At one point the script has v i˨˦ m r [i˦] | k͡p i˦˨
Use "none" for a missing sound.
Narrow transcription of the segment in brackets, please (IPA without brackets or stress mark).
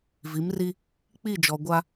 i˦